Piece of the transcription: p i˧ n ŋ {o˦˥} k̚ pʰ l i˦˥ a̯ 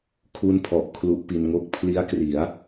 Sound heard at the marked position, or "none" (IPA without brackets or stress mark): o˥˩